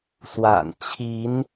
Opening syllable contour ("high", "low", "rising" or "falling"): low